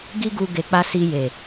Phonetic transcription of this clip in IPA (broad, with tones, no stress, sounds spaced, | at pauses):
ɡ i˦ ɡ u˧ ɡ e˧ k͡p a˦ s i˧ j e˨